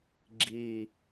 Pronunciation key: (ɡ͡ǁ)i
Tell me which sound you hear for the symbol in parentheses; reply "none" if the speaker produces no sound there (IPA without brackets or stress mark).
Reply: ɡ͡ǁ